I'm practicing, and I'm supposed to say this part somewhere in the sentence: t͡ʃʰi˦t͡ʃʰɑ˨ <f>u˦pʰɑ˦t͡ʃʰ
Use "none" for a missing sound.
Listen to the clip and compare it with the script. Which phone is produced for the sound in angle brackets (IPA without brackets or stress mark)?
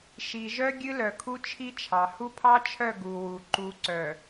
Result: h